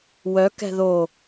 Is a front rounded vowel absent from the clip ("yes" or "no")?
no